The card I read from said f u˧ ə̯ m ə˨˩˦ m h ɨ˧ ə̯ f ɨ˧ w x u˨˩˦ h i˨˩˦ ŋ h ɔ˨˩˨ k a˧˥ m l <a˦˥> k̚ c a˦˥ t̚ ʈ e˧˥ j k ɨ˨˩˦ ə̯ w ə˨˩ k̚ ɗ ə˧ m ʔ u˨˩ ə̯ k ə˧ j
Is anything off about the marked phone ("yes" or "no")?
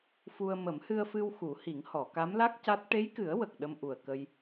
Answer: no